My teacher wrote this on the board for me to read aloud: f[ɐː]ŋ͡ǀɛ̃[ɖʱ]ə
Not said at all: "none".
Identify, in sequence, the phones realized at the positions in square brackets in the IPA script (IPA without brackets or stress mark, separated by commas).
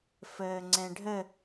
əː, ɖʱ